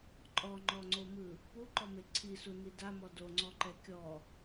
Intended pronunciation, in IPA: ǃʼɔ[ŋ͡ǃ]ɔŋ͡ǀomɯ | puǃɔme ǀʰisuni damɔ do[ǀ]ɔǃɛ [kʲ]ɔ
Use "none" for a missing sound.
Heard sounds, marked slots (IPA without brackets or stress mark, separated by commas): ŋ͡ǃ, ŋ͡ǀ, kʲ